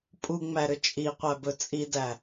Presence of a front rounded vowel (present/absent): present